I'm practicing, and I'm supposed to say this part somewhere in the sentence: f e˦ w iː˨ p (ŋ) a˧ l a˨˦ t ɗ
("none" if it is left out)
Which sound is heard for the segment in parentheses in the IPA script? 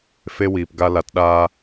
ɡ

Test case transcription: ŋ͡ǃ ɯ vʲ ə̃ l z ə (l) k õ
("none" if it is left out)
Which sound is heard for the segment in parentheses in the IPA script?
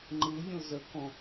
none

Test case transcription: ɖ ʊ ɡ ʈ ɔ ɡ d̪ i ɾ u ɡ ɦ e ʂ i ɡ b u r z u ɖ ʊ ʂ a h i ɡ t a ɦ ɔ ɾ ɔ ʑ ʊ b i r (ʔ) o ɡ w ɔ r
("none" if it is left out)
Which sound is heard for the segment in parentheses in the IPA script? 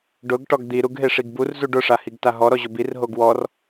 ɦ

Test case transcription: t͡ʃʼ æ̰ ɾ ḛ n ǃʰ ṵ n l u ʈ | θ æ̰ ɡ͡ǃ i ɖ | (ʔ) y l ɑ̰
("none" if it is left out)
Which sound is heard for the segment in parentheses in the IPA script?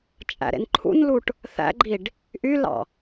ʔ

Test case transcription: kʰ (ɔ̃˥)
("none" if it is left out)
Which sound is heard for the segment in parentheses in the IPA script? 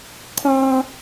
ɔ̃˥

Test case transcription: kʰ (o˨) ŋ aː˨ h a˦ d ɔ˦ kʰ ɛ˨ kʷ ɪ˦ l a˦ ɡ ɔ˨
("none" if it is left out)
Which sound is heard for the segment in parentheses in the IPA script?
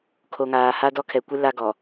o˨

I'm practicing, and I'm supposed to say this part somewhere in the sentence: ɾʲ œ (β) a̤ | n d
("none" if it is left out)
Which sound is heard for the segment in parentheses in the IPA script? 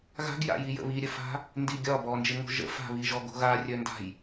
f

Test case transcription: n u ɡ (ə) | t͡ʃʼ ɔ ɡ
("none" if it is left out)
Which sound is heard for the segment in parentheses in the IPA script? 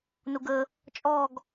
ə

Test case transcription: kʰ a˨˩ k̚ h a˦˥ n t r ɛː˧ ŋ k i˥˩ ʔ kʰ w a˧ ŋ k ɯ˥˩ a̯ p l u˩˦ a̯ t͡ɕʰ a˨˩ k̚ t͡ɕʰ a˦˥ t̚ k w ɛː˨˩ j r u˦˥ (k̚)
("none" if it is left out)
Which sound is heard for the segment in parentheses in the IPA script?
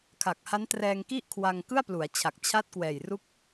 k̚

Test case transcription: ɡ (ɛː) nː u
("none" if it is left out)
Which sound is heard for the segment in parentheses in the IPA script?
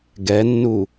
ɛ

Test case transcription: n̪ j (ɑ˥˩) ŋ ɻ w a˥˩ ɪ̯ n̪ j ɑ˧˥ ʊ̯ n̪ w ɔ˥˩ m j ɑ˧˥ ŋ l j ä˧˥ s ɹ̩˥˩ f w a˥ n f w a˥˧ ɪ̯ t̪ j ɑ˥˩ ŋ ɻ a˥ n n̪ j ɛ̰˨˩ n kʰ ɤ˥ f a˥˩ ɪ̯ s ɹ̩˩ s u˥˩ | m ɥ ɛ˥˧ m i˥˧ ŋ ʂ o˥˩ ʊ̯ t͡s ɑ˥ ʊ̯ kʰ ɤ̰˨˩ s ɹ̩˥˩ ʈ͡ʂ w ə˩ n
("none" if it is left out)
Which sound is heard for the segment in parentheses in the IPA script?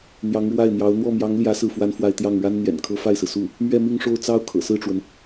ɑ˧˥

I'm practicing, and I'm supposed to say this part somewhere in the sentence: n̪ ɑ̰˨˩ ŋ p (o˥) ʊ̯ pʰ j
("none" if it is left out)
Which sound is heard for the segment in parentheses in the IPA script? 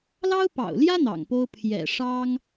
o˥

